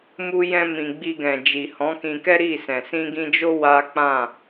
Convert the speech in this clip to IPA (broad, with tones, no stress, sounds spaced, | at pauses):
m u˦ j ɛ̃˦ m ĩ˧ ɡ͡b i˧ ɡ ɛ̃˨ d͡ʒ i˨ h ɔ̃˨˦ k ĩ˧ k ɛ˦ ɾ i˦˨ s ɛ̃˨ s ĩ˧ ɡ ĩ˧ d͡ʒ o˦ w a˦ k͡p ã˦˨